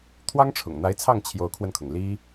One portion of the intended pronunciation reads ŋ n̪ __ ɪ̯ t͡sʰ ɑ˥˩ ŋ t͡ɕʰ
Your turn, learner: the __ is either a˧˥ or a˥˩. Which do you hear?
a˧˥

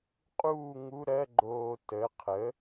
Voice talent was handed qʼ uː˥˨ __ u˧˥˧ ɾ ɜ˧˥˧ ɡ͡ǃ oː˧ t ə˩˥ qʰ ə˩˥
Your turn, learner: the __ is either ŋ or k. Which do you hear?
ŋ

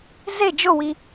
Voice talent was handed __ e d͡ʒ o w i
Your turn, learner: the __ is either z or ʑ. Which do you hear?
z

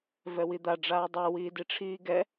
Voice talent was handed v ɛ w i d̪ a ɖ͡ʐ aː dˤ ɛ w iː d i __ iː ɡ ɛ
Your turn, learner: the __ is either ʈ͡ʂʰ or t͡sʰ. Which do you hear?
ʈ͡ʂʰ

